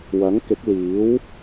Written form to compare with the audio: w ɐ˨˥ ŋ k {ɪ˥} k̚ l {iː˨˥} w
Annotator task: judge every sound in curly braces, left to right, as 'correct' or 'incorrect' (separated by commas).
incorrect, correct